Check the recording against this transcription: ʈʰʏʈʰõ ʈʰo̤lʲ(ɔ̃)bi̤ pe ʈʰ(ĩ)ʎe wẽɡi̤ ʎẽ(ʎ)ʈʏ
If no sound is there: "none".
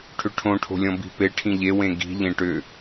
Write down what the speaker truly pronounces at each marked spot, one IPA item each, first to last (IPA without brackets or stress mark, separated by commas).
ɔ̃, ĩ, none